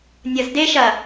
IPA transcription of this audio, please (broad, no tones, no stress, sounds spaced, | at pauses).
nʲ ɐ z d e ʃ ɐ